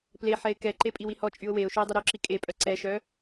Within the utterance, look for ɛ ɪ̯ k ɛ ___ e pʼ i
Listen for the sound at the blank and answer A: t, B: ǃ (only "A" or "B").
B